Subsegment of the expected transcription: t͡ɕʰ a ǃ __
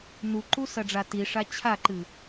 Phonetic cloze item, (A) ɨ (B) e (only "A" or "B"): A